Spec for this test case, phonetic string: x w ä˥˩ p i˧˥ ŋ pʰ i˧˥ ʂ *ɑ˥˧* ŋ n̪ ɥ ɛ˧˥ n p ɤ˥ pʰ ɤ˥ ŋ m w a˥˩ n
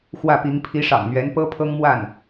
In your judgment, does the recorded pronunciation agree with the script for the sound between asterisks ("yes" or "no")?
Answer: no